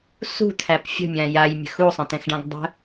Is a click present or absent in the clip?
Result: absent